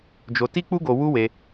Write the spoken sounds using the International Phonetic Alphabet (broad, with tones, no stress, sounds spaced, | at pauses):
d͡ʒ o˧ t i˦ k͡p u˦ ɡ o˧ w u˦ w e˧